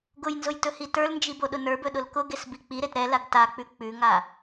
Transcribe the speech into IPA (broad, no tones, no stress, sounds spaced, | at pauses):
ɡ ʊ j n z ʊ j t ɵ h i t ə˞ l n d͡ʒ i b o ɗ ʊ n ə˞ b ɵ ɗ ʊ l k ʊ ɡ e s b i k͡p i ɾ e t ɾ ɛ l a ɡ t a k͡p ʉ k͡p ʉ ŋ a